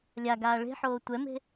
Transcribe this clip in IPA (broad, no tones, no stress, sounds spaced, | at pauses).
lʲ a ɡ aː ɭ e̤ ħ oː tʷ ɛ m e̤